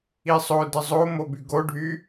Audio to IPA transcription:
i sˤ o d ə zˤ o m o b y ɡ o ɖʱ y

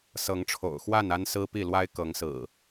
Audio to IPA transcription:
s ɤ˨˦ ŋ ʈ͡ʂʰ o̰˨˩ ʊ̯ x w a˥˨ n a˦ n s ɹ̩˦ p i˥˨ l w a˦ ɪ̯ k ɤ˨˦ ŋ s ɹ̩˨˩

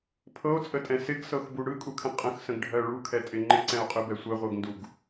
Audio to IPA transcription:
pʰ ɤ o̯ t͡sʼ ə tʼ ɛ̃ s ɪ ɡ s ɤ x b u ɽ ɯ kʼ u kʰ ɛ̃ qʼ ə̃ x s ə̃ ɡ ɖʱ ɜ ɭ u kʰ ɛ tʼ ɪ ŋ͡ǃ ɪ ǀ ɛ̃ o̯ qʼ ɯ b ɛ sʷ ɜ ʁʷ ɜ ɡ n d u ɡ

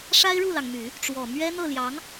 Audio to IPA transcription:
ʂ a˥ ɪ̯ ɻ u˥˩ l ɑ˩ ŋ m y˨˩˦ | ʈ͡ʂ w ɔ˨˩ m ɥ ɛ˥ n̪ ɤ˥˩ l j ɑ˧˥ ŋ

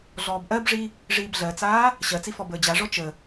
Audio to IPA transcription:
ɮ ɔː b ʔ ɜ b ʐ i | ʐ iː b ɮ ɜ t͡s aː | ɕ ɜ t͡s i f ɔ b əː d͡ʑ a ʐ ɔ t͡ʃ ə

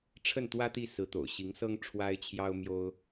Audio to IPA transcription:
ʈ͡ʂʰ ə˥˩ n t̪ w ä˥ t̪ i˥˩ s ɹ̩˧˥ t̪ o̰˨˩ ʊ̯ ɕ i˧˥ ŋ s ɤ˥ ŋ ʈ͡ʂʰ w a˥ ɪ̯ t͡ɕʰ j ɑ˥ ʊ̯ m j o˥ ʊ̯

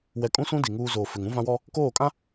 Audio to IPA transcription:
w ɛ˨ kʼ ũ˦ s ũ˦ d i˨ ŋ uː˦ z oː˨ f ɪ˨ ŋ ũ˦ v ã˦ w ɔ˦ | k oː˦˨ kʼ ã˦

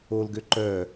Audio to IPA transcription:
o l ɡ ø ǃ œ

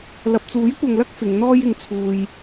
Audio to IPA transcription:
l ɐ˨ p̚ t͡s uː˨˥ j kʷ ɐ˨ ŋ l ɐ˥ k̚ f ɪ˨˧ ŋ n̪ ɔː˥ j ɪ˨˧ ŋ t͡sʰ uː˨ j

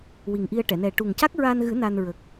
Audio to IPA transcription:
w i˨˩ ŋ ʔ i˧ ə̯ ʈ ɛ˨˩˨ n ɛ˨˩ ʈ u˨˩ ŋ c a˦˥ k̚ ɹ aː˧ n ɣ ɨ˨˩˦ n a˧ n ɹ ə˨˩ k̚

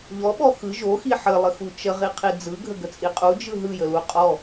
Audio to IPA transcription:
ʎ ɔ ɓ ɔ x ɯ ʒ o x i ħ ə lˠ ə x u t͡ʃ ə ʁ i qʰ i d͡z ɯ ɡʱ ə ɡ ə t͡sʼ i qʼ u d͡ʒ ɯ ɦ ɯ j ə l u qʼ ɔ

